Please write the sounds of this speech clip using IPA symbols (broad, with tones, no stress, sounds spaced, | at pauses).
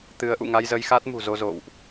t̪ ɨ˨˦ ə̯ ʔ ṵ˧˨ ŋ a˧ j z ə˧ j x a˦˥ t̚ m ṳ˨˩ z o˧ z o̰˧˨ w ʔ